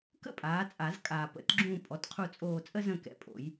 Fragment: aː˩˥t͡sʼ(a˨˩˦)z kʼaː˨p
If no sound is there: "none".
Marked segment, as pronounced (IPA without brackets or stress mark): a˨˩˦